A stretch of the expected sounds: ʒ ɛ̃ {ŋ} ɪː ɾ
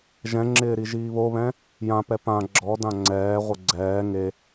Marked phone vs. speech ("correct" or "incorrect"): incorrect